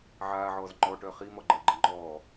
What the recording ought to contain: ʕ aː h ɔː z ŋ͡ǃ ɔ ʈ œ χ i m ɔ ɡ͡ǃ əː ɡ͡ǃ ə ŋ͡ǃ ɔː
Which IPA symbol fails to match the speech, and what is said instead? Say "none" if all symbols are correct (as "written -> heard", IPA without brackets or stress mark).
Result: h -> ʕ